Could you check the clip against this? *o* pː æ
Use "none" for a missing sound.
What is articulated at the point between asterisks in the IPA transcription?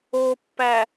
o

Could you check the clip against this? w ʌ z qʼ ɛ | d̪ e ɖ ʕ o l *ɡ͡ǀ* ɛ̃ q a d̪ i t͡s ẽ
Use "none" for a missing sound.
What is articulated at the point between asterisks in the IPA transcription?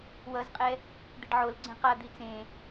ɡ͡ǀ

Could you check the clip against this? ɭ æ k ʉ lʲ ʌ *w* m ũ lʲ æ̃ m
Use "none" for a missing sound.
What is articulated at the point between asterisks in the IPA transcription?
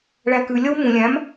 w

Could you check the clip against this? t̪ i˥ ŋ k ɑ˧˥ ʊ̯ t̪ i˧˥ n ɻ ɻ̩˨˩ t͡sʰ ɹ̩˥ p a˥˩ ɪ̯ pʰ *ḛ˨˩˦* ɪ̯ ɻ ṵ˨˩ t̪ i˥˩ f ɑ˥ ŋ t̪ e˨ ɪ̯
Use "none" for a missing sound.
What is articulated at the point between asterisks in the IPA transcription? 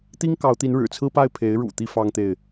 e˧˥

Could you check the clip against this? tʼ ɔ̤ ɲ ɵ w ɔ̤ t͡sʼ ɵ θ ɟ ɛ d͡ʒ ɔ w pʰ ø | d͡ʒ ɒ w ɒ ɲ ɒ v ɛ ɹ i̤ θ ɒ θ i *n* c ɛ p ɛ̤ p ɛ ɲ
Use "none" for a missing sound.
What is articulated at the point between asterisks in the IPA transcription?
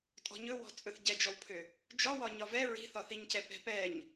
ɲ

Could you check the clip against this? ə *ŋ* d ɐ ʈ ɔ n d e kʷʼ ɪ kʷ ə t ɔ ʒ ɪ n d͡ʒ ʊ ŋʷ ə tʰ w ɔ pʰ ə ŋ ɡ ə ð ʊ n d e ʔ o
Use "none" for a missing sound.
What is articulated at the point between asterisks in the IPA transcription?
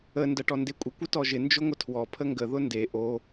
n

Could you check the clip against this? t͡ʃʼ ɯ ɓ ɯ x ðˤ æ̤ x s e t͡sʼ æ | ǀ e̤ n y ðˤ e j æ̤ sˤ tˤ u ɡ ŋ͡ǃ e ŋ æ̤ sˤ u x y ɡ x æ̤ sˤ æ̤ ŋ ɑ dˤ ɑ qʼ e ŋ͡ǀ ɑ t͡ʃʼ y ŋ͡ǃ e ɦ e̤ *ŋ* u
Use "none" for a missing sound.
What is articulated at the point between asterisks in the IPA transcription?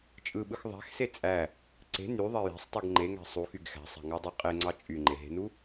n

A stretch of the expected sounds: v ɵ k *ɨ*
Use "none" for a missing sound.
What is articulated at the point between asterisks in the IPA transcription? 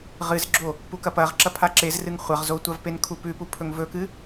ɨ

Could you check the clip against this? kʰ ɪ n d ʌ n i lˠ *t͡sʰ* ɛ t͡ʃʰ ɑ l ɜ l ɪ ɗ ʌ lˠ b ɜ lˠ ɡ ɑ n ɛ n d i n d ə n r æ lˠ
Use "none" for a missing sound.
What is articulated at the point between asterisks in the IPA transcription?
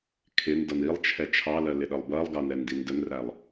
t͡ʃʰ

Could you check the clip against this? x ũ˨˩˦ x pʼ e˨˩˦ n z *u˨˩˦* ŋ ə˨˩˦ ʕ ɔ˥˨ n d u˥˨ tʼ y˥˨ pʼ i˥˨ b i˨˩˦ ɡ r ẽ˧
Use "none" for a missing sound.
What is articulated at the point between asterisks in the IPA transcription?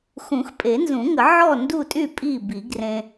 ũ˨˩˦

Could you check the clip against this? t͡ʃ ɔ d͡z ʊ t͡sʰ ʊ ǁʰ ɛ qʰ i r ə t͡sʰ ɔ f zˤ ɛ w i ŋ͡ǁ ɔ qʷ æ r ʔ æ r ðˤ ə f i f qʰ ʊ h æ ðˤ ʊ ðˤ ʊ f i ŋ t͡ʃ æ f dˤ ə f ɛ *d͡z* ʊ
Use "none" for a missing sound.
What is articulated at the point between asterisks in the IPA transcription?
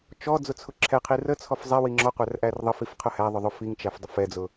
d͡z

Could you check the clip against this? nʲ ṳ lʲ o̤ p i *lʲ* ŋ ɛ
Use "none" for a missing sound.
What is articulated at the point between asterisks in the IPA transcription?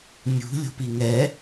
none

